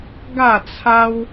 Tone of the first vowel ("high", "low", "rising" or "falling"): falling